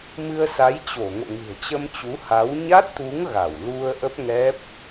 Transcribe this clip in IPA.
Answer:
m ɨ˧ ə̯ s a˨˦ j t͡ɕ o˧˩ ŋ o̰˧˨ ŋ ɨ̤˨˩ ə̯ t͡ɕ ə˧ m t͡ɕ u˨˦ h a˨˦ w ɲ a˦˥ t̚ t̪ u˨˦ ŋ ɣ a˧˩ w l u˧ ə̯ ʔ ə˦˥ p̚ ŋ ɛ˦˥ p̚

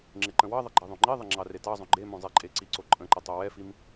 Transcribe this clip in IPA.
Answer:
ŋ͡ǁ ɪ ǃ ə̃ w ɑ ðˤ ɪ ɡ͡ǃ e ðˤ õ ŋ͡ǃ i ðˤ ɪ ŋ͡ǁ ɑ r e t ɑ zˤ õ ɡ͡ǃ e m õ zˤ e ǃʼ e ǀ i ǀ o ǃʼ ə̃ ǃ ə tˤ o w ɛ f i m

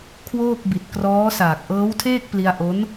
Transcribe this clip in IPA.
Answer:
kʰ w oː˥˩ k̚ b i˨˩ t̚ k r ɔː˦˥ s aː˨˩ k̚ ʔ ɤː˦˥ w tʰ eː˥˩ k̚ p l i˧ a̯ ʔ o˦˥ n

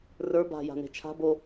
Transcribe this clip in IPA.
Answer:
r ə˞ b a̤ j a̤ n e̤ t͡ʃʰ a̤ b o

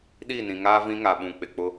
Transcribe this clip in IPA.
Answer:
ɗ iː˦˨ n ĩ˨ ŋ aː˦ v ĩ˦ ŋ a˨ ɓ ũ˨ k͡p ɪ˨ k͡p ʊ˦

